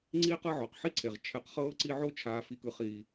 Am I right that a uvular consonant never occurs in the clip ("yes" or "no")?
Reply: no